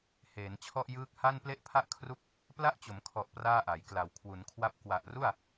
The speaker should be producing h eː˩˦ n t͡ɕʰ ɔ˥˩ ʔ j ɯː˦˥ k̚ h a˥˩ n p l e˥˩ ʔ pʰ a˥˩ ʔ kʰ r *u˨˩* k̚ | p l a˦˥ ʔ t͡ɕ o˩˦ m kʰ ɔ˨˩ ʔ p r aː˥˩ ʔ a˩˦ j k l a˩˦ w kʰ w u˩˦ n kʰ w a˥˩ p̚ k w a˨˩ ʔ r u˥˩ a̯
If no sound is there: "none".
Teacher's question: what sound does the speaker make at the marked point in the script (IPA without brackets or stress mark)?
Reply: u˦˥